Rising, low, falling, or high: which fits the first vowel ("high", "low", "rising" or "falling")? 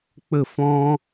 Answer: falling